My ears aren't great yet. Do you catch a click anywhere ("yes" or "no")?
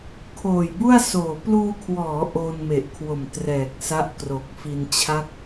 no